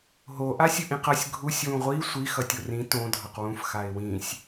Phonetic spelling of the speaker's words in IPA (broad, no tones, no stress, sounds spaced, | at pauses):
ɦ o ʔ a sʲ ɯ ʔ ĩ q ʌ sʲ ɡʱ u sʲ w ũ ʁʷ i sʷ i x ʌ tʲ o r ĩ t õ dʱ ʌ q w ũ f x a ɪ̯ w ĩ sʲ